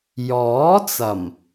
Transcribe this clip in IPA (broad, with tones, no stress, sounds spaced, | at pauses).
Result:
j ɔː˨˥ t͡s ɐ˨˩ m